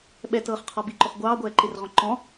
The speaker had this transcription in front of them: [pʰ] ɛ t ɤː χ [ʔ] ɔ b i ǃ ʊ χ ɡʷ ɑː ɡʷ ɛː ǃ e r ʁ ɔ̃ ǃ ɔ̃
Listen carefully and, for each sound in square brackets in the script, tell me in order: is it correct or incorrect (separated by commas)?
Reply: incorrect, incorrect